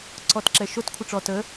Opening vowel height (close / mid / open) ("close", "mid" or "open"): mid